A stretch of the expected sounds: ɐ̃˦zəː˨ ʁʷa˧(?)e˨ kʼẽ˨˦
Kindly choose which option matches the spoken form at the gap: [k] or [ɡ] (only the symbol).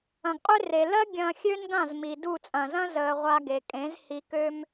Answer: ɡ